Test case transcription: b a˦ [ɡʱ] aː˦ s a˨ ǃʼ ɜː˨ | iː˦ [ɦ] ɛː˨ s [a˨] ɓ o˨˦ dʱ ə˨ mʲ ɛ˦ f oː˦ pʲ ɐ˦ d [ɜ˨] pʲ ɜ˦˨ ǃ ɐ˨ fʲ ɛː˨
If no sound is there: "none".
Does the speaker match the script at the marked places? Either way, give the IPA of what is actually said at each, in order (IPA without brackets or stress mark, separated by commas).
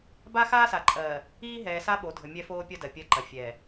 x, ɦ, a˦, ɜ˨